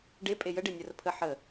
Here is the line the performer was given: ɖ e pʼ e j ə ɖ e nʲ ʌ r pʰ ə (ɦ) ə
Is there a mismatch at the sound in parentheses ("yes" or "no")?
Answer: yes